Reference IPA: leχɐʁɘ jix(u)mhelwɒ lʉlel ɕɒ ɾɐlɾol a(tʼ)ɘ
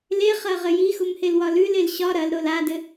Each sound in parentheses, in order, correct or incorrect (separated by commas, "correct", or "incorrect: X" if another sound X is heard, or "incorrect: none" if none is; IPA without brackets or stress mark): correct, incorrect: d